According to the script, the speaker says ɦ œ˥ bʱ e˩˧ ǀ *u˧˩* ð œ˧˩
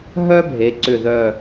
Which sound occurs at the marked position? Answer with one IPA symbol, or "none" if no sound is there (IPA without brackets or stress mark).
ʏ˧˩